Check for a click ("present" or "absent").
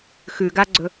present